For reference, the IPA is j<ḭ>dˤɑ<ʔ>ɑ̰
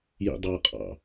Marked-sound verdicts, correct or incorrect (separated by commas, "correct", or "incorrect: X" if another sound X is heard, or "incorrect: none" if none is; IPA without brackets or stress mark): correct, incorrect: qʼ